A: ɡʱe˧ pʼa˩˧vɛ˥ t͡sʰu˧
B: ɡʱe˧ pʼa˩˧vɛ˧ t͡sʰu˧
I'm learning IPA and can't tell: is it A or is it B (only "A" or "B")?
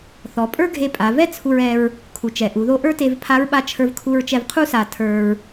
A